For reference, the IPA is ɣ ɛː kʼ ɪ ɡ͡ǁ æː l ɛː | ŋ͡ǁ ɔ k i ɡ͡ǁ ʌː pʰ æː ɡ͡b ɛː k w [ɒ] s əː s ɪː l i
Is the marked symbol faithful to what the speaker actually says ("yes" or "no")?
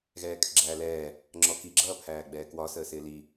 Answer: yes